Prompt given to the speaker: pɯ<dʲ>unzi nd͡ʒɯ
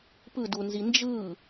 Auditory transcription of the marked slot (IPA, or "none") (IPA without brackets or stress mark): d